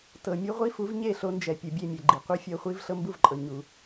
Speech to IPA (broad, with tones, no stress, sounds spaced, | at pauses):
t ɤ˨ mʲ u˦ ʁʷ i˦ f u˨˦ v ɲ e˦˨ ɬ o˧ n d͡ʒ ɛ˨ pʲ ɯ˨ bʲ e˦˨ mʲ ɛ˨ ɡ͡ǃ i˨ qʷ ɯ˦ fʲ ɤ˧ χʷ i˦ v ɬ ɤ˦ m b u˦˨ v ǃʼ ɤ˨ ɲ u˨